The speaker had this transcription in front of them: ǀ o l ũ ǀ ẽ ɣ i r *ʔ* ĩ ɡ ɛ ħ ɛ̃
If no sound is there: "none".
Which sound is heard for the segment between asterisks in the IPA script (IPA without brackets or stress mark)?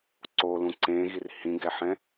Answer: h